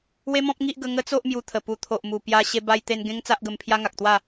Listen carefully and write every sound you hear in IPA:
we˦mɔ̃˦p̚ŋi˦ʔ ɡə˧ŋə˦t͡so˦ʔ mju˧t̪ʰə˨˩ pu˨˩t̪ʰo˨ʔmu˨˩ pja˧ɕe˧ ba˧jt̪e˧n ɡẽ˦ŋt͡sa˦ʔɡə˧mpʰja˦ ŋa˨k̚t̪wa˥˧

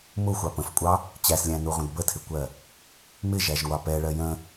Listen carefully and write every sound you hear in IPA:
mʊxʷɑ pə̃fkʷʼɑ | t͡ɕæslʲæ̃nuʁʷə̃d bətʰɪkʷɜ | mɪʒæʒŋʷɑ pɛɭɜ jə̃

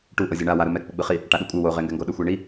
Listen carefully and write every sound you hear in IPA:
ʈuʔɤzʲɔ ɳa waɾɯ mɛ k͡pɯɡ͡bɯχi | ʈaɗukʷʼɯ woʁeŋɡɛŋɡo ɗɯxʷeɳi

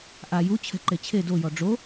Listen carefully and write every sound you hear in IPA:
ʔa jut͡ɕʰɛ̤ ǃet͡ɕʰe dojɔ ɖ͡ʐo

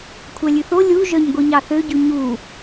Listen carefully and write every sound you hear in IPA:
kʷʰælʲʉθo lʲu ʒœɲɡʷiɲɑθø ɟʉɲu

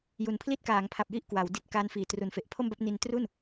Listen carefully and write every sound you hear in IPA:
ju˨˩npʰli˥˩t̚kaː˩˦ŋpʰa˨˩p̚ ji˥˩ʔkwa˩˦w di˦˥t̚ka˦˥nfiː˩˦ tru˩˦nfe˨˩ʔpʰo˥˩mba˥˩p̚ ni˧ntru˥˩n

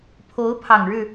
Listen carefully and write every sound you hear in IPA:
pʰo˨˦ʊ̯pʰɑ˨˩ŋɻɻ̩˥˨

